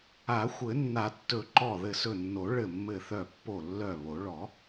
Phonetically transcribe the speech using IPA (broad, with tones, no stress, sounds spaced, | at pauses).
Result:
a˨˩˦ xʷ ɘ˨˩˦ nː a˨˩˦ tː ɵ˨˩˦ ǃ ɔ˧˩ ð ɘ˧˩ s ɵ˧˩ nː o˨˩˦ ɭ ɘ˧˩ mː ɘ˧˩ θ œ˧˩ pː o˧˩ lː œ˧˩ β o˨˩˦ ɭ ɔ˨˩˦